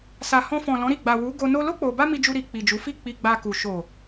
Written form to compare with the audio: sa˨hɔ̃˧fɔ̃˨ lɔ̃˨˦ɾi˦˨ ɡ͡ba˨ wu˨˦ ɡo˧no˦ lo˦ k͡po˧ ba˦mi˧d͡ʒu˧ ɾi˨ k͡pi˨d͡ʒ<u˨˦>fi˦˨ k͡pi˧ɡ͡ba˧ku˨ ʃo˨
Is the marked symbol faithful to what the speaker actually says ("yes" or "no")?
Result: yes